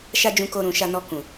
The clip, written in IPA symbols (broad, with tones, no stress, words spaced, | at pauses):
ʃa˦d͡ʒũ˧ko˧ɾũ˨ ʃa˧nɔ˧ kũ˨